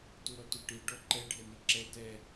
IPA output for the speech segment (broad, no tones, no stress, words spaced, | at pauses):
tuɾɔtuʈi ɖɔǃɛ ɖʱɛniǁɛ tɛ